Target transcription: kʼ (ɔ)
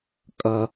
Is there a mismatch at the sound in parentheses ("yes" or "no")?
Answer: yes